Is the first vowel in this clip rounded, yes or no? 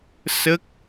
no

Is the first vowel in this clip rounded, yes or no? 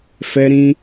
no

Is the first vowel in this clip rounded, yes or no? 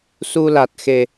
yes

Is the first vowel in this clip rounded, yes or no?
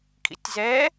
no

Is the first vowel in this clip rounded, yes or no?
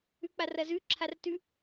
yes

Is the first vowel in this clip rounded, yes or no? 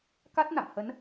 no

